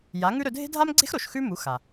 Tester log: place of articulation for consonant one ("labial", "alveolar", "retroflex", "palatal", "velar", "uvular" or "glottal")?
palatal